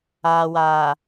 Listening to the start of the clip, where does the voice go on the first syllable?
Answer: low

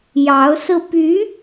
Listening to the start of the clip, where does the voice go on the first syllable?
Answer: rising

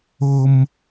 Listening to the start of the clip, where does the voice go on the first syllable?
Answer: high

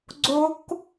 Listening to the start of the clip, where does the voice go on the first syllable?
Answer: rising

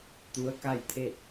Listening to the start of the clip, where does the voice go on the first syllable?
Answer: rising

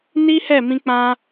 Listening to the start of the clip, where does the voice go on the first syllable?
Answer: high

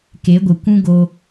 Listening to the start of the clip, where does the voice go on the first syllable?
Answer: rising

